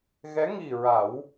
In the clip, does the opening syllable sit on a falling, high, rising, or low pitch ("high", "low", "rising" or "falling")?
rising